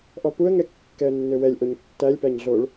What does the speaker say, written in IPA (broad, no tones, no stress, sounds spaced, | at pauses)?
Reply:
ʔ ɔ p u ə̯ ŋ ɛ kː ɛ ə̯ nː ø w ɛ lʲ ʔ o ɲ tː æ lʲ p æ ɲ ɮ o ɭ